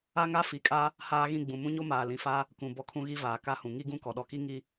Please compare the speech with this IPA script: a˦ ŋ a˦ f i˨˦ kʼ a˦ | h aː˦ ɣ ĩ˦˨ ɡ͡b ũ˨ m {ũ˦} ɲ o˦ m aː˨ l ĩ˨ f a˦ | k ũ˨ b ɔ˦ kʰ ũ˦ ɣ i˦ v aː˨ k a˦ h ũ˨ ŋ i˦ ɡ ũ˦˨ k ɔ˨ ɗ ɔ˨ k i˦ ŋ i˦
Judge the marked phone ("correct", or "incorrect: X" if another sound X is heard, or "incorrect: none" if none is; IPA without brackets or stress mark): correct